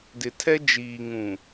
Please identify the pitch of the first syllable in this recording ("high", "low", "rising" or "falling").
low